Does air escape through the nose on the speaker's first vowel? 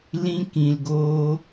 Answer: yes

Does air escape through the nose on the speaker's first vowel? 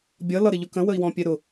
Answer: no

